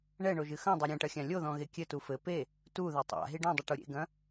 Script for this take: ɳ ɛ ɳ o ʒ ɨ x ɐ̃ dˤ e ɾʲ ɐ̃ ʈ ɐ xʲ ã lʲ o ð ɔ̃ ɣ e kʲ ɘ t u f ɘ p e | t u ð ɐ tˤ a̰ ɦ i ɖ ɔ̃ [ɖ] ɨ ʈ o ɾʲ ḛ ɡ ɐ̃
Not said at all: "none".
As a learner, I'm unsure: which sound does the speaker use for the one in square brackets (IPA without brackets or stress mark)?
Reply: dˤ